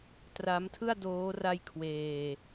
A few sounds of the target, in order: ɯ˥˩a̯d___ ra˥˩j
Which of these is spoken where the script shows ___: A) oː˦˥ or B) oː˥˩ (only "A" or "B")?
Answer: A